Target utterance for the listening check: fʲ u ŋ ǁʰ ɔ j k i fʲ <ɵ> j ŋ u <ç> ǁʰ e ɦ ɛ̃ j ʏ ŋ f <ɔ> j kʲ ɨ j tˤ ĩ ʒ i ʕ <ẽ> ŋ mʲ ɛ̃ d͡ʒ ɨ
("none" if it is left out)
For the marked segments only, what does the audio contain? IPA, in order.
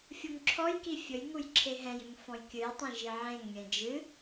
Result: ɵ, j, ɔ̃, ẽ

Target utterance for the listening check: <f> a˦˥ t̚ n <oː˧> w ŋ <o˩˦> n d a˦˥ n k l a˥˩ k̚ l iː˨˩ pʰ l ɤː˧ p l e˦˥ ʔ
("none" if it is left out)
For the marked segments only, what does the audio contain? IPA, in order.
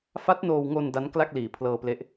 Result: f, oː˧, o˧

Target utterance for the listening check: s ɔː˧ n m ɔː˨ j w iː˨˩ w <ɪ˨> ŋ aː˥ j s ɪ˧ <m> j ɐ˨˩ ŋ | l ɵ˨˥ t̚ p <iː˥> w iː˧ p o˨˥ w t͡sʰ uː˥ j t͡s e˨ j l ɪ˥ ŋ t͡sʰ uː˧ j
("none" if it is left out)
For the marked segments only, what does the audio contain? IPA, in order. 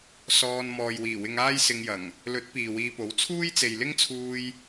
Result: ɪ˧, ŋ, iː˨

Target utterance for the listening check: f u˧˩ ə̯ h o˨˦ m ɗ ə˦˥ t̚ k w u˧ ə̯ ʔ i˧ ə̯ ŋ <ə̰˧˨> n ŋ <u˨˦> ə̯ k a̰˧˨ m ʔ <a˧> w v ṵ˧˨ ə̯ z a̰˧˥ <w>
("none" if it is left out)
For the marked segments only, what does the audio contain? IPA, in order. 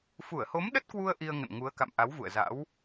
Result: ə̰˧˨, u˨˦, a˨˦, w

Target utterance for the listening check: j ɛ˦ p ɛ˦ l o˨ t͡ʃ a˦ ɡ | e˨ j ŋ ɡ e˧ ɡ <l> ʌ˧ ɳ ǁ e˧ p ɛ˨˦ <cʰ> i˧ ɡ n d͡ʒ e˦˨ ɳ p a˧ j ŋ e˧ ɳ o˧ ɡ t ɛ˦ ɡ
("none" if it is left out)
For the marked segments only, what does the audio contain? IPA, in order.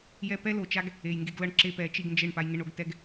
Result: l, t͡ʃ

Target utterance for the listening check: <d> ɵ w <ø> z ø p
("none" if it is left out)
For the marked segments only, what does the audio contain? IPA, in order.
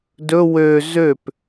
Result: d, ø

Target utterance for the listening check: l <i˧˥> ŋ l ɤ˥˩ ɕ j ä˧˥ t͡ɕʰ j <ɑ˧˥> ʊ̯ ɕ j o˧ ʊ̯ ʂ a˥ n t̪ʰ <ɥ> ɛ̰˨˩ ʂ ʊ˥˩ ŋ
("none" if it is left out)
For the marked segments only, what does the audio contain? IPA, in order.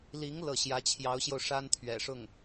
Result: i˧˥, ɑ˧˥, ɥ

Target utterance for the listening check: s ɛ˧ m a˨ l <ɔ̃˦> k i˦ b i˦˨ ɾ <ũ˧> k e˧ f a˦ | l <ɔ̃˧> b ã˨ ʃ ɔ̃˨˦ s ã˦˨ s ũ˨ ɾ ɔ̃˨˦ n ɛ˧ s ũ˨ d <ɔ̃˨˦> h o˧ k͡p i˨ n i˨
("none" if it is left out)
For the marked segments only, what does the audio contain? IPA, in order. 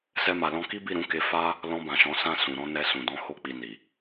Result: ɔ̃˧, ũ˨˦, ɔ̃˧, ɔ̃˨˦

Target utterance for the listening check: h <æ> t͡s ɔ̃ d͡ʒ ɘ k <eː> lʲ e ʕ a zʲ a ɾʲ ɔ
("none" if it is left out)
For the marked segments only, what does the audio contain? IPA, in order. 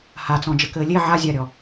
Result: a, ɘː

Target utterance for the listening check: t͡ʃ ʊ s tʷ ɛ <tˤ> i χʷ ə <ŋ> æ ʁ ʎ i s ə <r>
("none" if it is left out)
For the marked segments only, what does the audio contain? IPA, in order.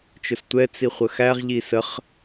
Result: t͡s, x, χ

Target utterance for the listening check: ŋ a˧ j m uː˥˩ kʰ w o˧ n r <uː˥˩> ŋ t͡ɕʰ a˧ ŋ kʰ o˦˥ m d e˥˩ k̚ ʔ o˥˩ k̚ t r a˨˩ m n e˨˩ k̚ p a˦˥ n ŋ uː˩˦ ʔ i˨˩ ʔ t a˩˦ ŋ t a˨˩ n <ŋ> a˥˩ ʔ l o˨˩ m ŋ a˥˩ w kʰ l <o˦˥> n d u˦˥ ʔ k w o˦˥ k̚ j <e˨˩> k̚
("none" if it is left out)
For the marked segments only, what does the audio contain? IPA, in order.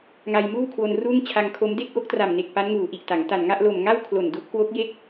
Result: uː˥˩, ŋ, o˨˩, e˥˩

